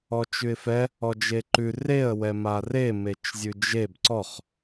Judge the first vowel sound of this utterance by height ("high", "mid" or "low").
mid